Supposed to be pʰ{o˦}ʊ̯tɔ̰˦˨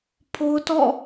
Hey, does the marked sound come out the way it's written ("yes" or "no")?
yes